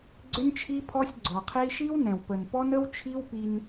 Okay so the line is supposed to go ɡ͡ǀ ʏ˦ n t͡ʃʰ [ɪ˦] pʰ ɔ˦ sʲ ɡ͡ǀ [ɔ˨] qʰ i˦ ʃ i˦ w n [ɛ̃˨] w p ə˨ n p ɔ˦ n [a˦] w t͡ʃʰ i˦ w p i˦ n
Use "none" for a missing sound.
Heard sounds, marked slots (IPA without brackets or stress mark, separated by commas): i˦, ɔ˨, ɛ̃˨, ə˦